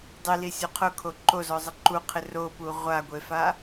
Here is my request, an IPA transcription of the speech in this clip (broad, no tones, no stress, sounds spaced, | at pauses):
dˤ i l i sʲ o qʰ ʊ kʰ o ǃ o z ɔ zˤ ɪ ǃ u qʰ ɪ r o p u ʁʷ a ɡʷ e f a